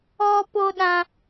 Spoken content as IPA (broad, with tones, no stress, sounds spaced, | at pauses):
ɔ˧ p o˧ ɗ ã˧